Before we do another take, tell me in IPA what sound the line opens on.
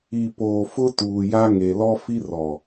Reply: i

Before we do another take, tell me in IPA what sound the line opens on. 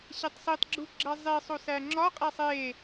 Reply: ɕ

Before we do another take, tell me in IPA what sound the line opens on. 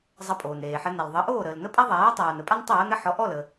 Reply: zˤ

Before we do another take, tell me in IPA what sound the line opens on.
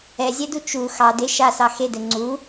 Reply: ɛ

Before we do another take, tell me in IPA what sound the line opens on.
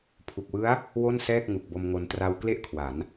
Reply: pʰ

